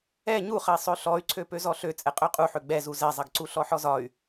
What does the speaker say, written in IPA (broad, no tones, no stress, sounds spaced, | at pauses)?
ɛ ɲ u χ ɐ i̯ sˤ ø ɬ ɔ y̯ ǀʰ ø p ø z ɔ ɬ ø t͡sʼ ɛ qʼ ø qʼ u ħ ø ɡ͡b ɛ z u z ɛ zˤ ɐ ɡ ǀ u ɬ ɔ ħ ɔ z ɒ y̯